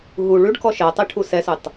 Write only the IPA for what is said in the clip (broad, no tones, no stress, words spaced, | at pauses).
ɦu ɭʉɖkɔ ʃɜtˤiʈʰu sɛsʉtˤ